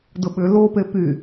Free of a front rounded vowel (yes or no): no